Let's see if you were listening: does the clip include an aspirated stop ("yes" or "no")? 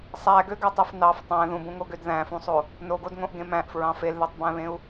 no